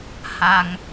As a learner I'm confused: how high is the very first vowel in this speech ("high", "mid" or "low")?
low